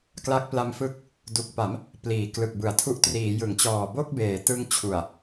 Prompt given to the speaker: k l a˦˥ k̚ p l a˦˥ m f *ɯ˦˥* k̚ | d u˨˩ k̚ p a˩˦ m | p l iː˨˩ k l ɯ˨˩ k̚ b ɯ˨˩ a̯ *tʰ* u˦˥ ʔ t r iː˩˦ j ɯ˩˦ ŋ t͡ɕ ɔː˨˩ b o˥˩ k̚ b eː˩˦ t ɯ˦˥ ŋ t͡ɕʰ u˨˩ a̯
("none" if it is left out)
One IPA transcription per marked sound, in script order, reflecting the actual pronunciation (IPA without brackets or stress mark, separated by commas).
ɯ˦˥, tʰ